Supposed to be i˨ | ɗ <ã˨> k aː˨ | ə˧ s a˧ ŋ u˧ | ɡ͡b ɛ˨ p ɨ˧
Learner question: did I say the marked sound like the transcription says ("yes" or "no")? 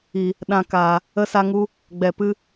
yes